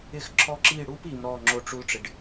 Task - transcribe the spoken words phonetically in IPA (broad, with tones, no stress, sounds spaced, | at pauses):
ɪ˥˧ x ǁʰ ɔ˥ ǁ i˥˧ ɽ u˥ p i˨˦ m ɾ ɔ˥˧ ŋ͡ǁ o˥ ʈ͡ʂ u˥ l ʈ͡ʂ ɪ˨˦ ɖ